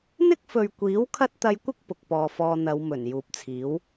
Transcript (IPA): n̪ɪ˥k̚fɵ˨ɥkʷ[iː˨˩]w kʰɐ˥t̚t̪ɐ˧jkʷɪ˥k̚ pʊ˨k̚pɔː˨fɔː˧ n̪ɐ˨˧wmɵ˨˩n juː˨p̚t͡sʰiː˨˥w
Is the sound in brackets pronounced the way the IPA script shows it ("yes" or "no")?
no